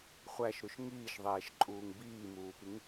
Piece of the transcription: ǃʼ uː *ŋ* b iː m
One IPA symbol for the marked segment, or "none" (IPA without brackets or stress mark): ŋ